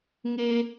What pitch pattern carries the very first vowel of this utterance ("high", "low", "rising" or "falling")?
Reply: high